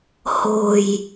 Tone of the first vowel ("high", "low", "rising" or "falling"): low